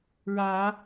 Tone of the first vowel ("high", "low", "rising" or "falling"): rising